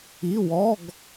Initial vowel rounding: unrounded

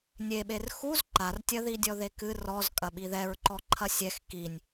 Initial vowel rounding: unrounded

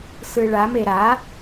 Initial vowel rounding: unrounded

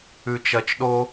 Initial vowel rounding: rounded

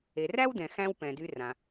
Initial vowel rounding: unrounded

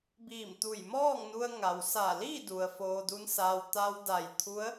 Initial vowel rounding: unrounded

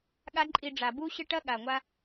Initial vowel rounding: unrounded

